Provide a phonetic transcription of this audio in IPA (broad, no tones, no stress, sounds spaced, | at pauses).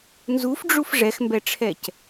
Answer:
n z u f ɖ͡ʐ u f ʐ ɛ x m b ɛ ʈ͡ʂʰ ɛ c